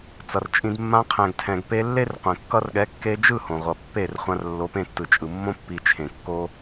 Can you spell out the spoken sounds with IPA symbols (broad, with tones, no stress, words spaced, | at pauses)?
t͡sʌ˨rt͡ʃʼĩ˧d mːã˧qʰɛ̃˨ɡtʰɛ̃˨ɡ pe˧ lːe˦rqʷẽ˨ kːʌ˧rɠɛ˨˦kːe˧ d͡ʒɯ˦˨ hõ˨ʁʷʌ˨pːe˦˨rχʷã˧r lːo˨˦pẽ˧tːɯ˨t͡ʃʼɯ˨ mːõ˧pːi˨ t͡ʃʰẽ˨kːo˦